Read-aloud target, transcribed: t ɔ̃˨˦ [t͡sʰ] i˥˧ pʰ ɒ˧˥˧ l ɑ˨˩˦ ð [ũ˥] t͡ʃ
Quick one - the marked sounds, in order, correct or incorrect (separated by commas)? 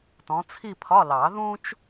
correct, correct